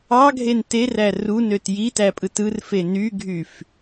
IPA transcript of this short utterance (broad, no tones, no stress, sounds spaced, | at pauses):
ɑ ɡʱ e n t e r æ r u n ø t j i t æ pʼ ɯ t ɯ r f e n y ɡʱ y f